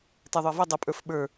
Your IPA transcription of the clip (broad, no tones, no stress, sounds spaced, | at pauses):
t ɛ ðˤ ʊ i̯ v ʌ dˤ ʌ pʼ ə˞ f ɓ ə˞